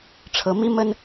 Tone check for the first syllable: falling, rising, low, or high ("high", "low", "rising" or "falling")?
rising